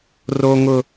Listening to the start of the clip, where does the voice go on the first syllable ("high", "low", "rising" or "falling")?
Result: high